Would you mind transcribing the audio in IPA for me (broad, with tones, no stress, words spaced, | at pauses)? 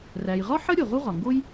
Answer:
ræ˩jʁɒ˥ħə˥ ɾʲo˩ʁu˥ʁɒ˩ŋɡo˥j